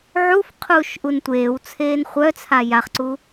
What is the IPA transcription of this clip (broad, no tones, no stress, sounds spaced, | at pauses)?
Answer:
ʕ u f qʰ uː ʃ ʔ u n tʷ eː w t͡sʰ eː n χʷ œ t͡sʰ a j a χ ǀ u